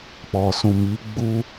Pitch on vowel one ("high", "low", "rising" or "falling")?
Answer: low